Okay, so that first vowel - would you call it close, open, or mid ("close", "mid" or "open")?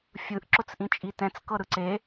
close